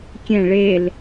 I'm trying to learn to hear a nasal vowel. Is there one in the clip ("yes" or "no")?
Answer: yes